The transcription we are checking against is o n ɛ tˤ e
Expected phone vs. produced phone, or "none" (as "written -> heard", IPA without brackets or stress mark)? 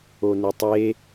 ɛ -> e